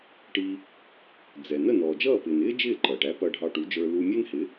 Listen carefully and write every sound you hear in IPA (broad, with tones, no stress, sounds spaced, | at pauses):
ʈ i˧ | d͡z ɛ˩ n ə˥˩ n ɔː˩ d͡ʒ ʌː˥˩ p ɪː˩ n ɪː˥ d͡ʒ ɪː˥˩ ǃ ʌː˩ ʈ æ˧ p ʌː˧ ɖʱ ɑ˧ ʈ u˩˥ d͡ʒ ə˞˧ l u˧ mʲ ɛ˥ n h ɪ˩˥